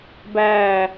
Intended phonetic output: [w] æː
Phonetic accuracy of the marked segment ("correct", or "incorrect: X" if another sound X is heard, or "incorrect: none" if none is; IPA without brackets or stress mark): incorrect: b